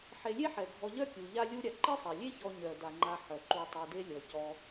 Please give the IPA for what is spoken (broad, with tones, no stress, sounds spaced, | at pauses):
ħ e˨ lʲ e˥ ħ ɛ˩ ɡʱ ɔ˨ ʎ œ˥ kʲ u˩ ʎ a˦ lʲ u˥ ɾʲ a˨ ǃ e˥ sˤ ɛ˩ lʲ e˥ ç ɔ˨ ɲ œ˩ d a˩ ŋ͡ǃ a˨ ħ œ˩ ǃ u˨ tˤ ɛ˨ d e˦ lʲ ɔ˩ c ɔ˨